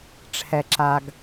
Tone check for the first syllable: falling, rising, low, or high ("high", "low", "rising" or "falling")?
low